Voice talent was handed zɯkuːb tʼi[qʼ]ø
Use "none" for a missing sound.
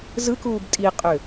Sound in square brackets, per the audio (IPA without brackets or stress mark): qʼ